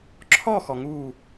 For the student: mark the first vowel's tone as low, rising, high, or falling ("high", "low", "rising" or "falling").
falling